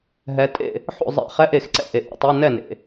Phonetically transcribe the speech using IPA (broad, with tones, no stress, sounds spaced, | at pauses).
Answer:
ɦ ɛ˩˧ tʼ ḛ˥˩ | ħ o̰˥˩ zˤ ɛ̰˧˥˧ χ ɛ˧˥˧ ʔ e˧˩˧ x ǀ ɛ̰˥˩ ʔ e˩ ʔ ḛ˩˧ tˤ e˧˥˧ n ɛ˥˩ n ḛ˩